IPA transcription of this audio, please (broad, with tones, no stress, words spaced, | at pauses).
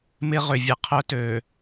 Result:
mɪ˦ ʁʏ˨vʲə˨qʰœ˦tø˨